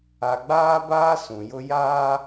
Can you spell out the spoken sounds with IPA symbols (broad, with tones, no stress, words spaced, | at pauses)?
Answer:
a˨ɡ͡baː˦baː˦ sũ˨jʊ˦ jaː˦